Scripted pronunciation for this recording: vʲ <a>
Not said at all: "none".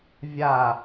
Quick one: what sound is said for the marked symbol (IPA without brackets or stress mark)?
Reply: a